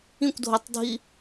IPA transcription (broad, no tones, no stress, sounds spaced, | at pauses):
ĩ kʷ dʱ o tˤ dʱ i